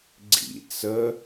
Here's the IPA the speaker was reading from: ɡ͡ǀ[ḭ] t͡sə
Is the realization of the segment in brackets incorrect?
no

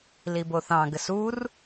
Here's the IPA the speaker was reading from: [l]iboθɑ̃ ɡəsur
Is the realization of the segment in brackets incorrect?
no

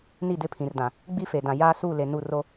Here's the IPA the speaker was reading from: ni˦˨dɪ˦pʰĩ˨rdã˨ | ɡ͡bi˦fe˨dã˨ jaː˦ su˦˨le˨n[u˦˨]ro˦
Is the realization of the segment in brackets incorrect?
no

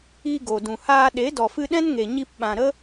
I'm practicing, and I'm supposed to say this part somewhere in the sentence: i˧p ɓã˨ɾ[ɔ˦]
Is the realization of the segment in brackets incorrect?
yes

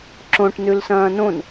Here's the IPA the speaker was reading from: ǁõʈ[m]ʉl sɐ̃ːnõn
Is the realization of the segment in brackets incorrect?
yes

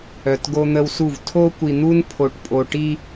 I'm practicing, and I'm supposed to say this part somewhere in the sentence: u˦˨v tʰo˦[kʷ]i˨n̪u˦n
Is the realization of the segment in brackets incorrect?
no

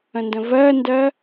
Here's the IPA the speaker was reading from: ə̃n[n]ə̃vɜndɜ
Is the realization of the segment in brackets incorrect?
yes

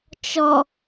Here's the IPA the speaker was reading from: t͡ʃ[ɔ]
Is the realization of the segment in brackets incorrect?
no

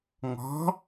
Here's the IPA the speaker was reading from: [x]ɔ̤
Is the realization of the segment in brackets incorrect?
yes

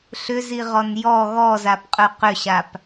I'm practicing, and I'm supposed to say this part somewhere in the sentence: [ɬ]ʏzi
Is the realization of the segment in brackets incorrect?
no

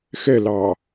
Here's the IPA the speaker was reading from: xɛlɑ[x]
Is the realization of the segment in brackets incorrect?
yes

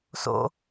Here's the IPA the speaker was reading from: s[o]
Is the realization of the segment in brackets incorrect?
yes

